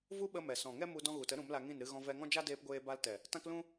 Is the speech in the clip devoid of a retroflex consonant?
yes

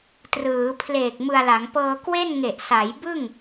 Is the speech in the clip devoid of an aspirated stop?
no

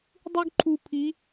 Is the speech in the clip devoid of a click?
no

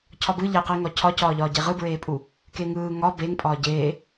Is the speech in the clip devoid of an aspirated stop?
no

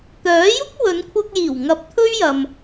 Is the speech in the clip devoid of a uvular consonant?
yes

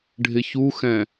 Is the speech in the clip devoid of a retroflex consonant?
no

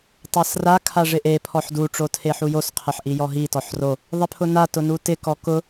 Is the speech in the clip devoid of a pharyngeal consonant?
no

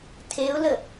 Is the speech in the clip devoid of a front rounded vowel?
yes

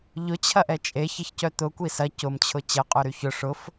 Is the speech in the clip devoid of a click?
yes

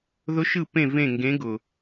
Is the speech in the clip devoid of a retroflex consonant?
yes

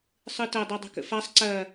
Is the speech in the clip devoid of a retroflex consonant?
yes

